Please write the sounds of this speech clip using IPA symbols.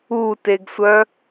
u t e ɡ sʷ œ

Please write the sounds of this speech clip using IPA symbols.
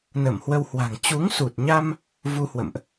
n ə˧˩ m h w ə˧ w h w a̤˨˩ ŋ t͡ɕ u˨˦ ŋ s u˨˩ t̚ ɲ a˧ m | v u˧ h w ə̰˧˨ m ʔ

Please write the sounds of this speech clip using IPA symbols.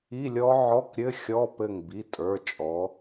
i˧˥˧ lʲ ɔ˦˥ ʕ ɔ˧˥˧ k ɾʲ ɘ˧˥˧ xʲ ɔ˧˥˧ p ɘ˧˩ ŋ b i˩˧˩ tʼ ə˞˩˧˩ t͡ʃʼ ɔ˩˧

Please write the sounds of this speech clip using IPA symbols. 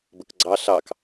b ə k ɡ͡ǀ ɑ ɬ ɑ k

